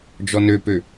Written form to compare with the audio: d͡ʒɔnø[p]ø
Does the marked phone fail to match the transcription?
no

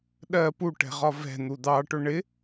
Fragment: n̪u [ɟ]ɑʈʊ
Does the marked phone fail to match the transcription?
yes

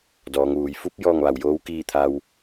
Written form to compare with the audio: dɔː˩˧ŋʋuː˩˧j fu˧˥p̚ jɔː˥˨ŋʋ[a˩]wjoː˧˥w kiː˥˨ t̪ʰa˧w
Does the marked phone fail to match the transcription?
yes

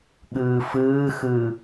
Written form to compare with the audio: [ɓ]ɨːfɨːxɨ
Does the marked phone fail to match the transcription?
yes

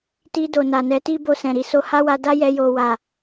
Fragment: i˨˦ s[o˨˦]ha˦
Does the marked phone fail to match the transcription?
yes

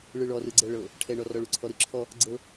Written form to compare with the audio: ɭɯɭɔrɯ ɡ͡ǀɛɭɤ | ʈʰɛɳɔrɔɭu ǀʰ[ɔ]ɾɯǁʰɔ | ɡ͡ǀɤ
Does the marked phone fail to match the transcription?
no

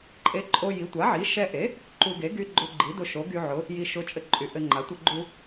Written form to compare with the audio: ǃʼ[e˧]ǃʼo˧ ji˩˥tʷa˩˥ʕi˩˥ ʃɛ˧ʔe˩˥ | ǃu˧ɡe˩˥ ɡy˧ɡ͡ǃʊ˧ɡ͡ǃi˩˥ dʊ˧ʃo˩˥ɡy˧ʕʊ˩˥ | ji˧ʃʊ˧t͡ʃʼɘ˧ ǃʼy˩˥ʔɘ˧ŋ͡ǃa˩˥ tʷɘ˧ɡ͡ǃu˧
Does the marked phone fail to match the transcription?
no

